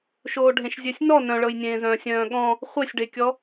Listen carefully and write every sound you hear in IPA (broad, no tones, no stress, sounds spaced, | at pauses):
ʃ oː ɖʱ ẽ ʃ zʲ ø sʲ n ɔ n œ̃ ɭ ɤ j nʲ ẽː z œ̃ː sʲ œ̃ː ɠ ɔ̃ | χʷ e sʲ ɖ e kʲ ɔ